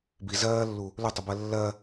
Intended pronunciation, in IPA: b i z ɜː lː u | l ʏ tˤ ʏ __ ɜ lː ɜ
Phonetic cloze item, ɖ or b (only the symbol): b